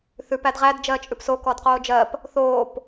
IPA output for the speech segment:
θʉpæd ʁædd͡ʒɜː t͡ʃʼʉpso kɔdqoːd͡ʒɜp | θoːp

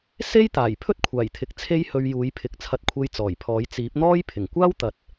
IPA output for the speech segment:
se˥jt̪aː˨˩j pʰɵ˥t̚kʷʰaː˨˩jt̪ʰɪ˨k̚ t͡sʰe˥jhɵ˧ɥ juː˨˥jpʰɪ˨˥k̚ t͡sʰɐ˧t̚kʷʰe˧j t͡sɔː˨˩jpʰɔː˨˥j t͡siː˨˥p̚n̪ɔː˥j pʰɪ˨˩ŋkʷaː˥wt̪ɐ˨t̚

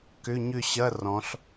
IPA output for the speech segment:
kʏ˧˥˧ɲʏ˥˧ ɕɐ˧˥˧rɔ̃˩˧ɬ

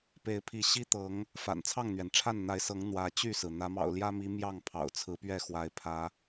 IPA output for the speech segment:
pe˨˦ɪ̯pʰi˨˦ ɕi˦t̪ɤ˨˦ŋ | fa̰˨˩nt͡sʰɑ˥˨ŋn̪ɥɛ˩nʈ͡ʂʰa˥˨n n̪a˨˦ɪ̯sɤ˨˦ŋ n̪wä˨˦t͡ɕy˥˨sɹ̩˩ n̪ä˨˦mɑ̰˨˩ʊ̯ljä˦mi˨˦ mjɑ˥˨ŋ pʰɑ̰˨˩ʊ̯t͡sʰɹ̩˨˦pɥɛ˥˨xwa˨˦ɪ̯ pʰä˨˦

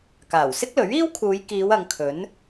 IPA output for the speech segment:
kaː˨˩wsɪ˥k̚lɵ˨˥ɥ iː˥wkʰuː˨˧jkiː˨˧w ɐ˨˧ŋkʰɵ˨˥n

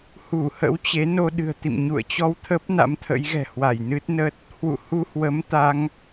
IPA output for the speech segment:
hu˧˩hə̰˧˥wt͡ɕe˨˦ no˧ɗɨ̤˨˩ə̯t̪ḭ˧˨m ɲṵ˧˨ə̯t͡ɕɔ˧wt̪ʰə˦˥p̚ na̰˧˥mt̪ʰə̰˧˥jɣɛ̤˨˩ hwa˧˩jnɨ˦˥t̚nə˦˥t̚ | hwṵ˧˨hu˧hwə˨˦m t̪a˨˦ŋ

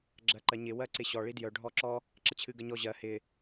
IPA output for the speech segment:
ɡ͡ǁɜǃɜɲɪ wɜǀɪɕɔ ɭidjœ ɖʱɔǁɔ | ǁət͡ɕʰɨɡəɲɔ ʑɜ hɪ

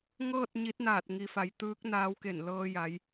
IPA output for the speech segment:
ŋɤː˥˨t̚ ɲi˧˥t̚naː˧˩t̚ ŋi˩fa˩˧j t̪ɯː˧˥k̚ naː˧˥wke˧˩n lɤː˧ja˩˧j

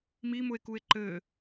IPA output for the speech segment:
mimʊe̯kue̯ ǃɘ

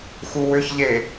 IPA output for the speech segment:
xuwʏçʎe

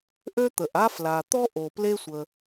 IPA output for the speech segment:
ʔø˥t̪ə˩ʔa˥ fla˩t̪ɔ˥ʔo˩ ple˥sʷə˩

